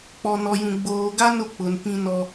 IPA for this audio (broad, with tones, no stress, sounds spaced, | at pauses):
k͡p ɔ˨ n ɔ˨ j ũ˨ ɡ͡b oː˨ ɡ a˦ n ʊ˨ k͡p ʊ˨ n p ĩ˦ n ɔ˦